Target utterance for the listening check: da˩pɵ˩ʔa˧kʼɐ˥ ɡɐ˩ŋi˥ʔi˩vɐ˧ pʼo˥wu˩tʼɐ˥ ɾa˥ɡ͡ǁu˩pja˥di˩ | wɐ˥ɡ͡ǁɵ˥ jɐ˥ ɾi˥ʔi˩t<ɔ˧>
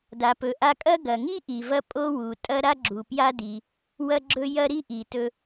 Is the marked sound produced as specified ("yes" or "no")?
no